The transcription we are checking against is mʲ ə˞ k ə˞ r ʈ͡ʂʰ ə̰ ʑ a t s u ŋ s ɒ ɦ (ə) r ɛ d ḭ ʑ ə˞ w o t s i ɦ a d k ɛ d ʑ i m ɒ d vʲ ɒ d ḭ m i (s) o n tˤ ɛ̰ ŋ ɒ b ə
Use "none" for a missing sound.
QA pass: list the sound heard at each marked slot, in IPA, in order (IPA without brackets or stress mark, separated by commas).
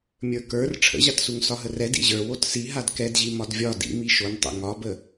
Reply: ə, ʃ